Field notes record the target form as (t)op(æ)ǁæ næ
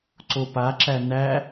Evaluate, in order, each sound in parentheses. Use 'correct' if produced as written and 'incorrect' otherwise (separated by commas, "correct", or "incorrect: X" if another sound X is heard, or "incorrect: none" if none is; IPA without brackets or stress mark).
incorrect: ǀ, incorrect: a